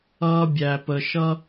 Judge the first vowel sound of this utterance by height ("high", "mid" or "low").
mid